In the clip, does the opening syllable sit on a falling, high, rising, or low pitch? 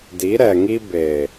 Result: rising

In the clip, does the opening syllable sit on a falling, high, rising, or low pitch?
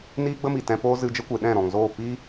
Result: high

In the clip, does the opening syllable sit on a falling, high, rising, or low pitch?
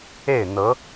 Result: falling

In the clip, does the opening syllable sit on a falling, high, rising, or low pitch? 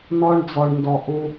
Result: high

